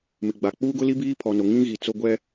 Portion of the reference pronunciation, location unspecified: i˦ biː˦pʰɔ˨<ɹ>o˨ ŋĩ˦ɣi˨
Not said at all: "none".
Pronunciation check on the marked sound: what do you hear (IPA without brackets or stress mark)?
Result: n